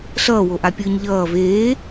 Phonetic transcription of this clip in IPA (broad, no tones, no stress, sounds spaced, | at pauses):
ɬ ʌː w o ʔ a pʲ ɯː ɲ ʎ ʌː v eː